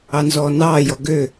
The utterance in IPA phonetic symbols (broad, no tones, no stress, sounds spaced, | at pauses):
ɑ n z ɔː n ɑː j ɔ ɡ ø